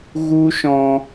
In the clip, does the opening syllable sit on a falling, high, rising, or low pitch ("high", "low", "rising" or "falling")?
high